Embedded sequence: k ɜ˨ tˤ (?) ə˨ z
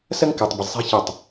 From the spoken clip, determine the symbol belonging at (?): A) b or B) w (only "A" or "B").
A